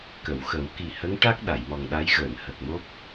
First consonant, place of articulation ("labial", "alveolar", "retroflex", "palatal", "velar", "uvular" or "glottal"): velar